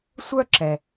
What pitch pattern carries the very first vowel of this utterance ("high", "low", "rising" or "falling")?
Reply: high